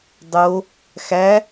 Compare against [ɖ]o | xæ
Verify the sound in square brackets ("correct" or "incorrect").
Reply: incorrect